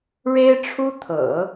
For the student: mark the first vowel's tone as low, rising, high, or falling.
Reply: high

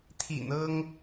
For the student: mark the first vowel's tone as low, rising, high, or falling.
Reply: low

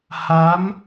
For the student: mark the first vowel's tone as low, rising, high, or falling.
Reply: rising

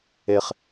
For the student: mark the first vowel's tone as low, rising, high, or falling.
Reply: low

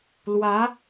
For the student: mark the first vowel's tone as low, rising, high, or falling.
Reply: rising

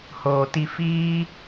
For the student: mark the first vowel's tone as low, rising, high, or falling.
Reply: low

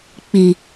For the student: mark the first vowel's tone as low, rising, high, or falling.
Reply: low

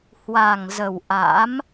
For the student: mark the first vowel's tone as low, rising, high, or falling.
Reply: low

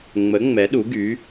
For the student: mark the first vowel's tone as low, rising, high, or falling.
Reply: rising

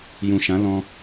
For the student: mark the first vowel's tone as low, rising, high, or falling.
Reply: low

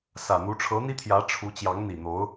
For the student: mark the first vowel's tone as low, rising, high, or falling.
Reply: low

